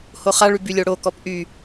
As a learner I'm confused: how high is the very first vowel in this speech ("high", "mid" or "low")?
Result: mid